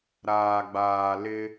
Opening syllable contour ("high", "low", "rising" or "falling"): low